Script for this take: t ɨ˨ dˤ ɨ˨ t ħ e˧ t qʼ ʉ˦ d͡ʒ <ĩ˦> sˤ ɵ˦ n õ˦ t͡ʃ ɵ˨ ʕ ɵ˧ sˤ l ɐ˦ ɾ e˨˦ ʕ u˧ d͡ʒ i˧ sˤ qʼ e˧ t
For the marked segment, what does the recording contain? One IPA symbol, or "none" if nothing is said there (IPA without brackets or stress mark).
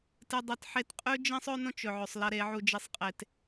ĩ˦